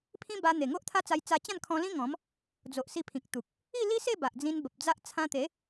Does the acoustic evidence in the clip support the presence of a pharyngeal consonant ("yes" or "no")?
no